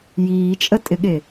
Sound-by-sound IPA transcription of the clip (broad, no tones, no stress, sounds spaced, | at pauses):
j iː t͡ʃʼ ə tʼ ɪ ɠ e